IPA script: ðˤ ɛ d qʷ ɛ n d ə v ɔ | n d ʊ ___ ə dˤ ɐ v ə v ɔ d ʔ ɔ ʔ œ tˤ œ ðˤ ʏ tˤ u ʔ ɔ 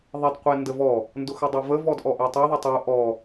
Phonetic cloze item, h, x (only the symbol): x